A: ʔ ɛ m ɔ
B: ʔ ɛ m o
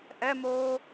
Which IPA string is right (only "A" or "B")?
B